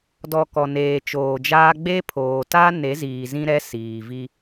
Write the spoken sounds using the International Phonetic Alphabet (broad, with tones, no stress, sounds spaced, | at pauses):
d ɔ˨ k ɔ˨ n eː˨ t͡ʃ oː˨ d͡ʒ aː˦ ɡ͡b e˦ pʰ oː˨ t a˦ n e˨˦ z iː˨ z ĩ˦ ɾ ɛ˦ s iː˨ v i˦